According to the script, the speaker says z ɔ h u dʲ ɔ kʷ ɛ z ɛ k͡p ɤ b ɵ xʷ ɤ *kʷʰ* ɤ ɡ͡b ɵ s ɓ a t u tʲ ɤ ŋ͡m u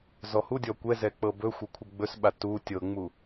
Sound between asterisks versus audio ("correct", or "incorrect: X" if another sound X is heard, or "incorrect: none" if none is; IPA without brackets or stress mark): correct